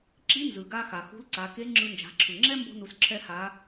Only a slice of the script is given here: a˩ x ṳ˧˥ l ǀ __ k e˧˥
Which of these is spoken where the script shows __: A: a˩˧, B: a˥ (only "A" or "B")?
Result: A